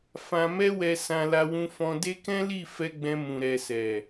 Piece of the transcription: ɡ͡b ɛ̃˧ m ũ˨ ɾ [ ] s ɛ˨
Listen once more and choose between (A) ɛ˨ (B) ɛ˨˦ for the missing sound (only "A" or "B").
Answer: A